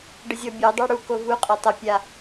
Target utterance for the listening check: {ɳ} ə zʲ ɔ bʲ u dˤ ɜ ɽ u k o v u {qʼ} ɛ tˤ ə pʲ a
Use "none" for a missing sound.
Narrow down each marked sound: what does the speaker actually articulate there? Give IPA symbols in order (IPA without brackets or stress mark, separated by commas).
ɖ, qʼ